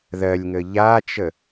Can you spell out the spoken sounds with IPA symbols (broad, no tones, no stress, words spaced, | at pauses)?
ðɜlʲŋə ʎat͡ʃə